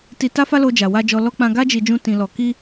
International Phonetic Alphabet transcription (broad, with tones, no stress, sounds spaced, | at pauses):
t i˧ t a˦ f a˦ l o˧ d͡ʒ a˨ w a˧ d͡ʒ ɔ˧ l ɔ˦ k͡p ã˧ ɡ a˦ d͡ʒ i˧ d͡ʒ ũ˦ t ĩ˧ l ɔ˧ k i˦